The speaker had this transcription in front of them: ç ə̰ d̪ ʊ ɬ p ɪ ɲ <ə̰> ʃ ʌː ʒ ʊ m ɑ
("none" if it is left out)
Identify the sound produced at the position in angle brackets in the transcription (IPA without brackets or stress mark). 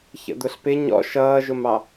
ɔ̰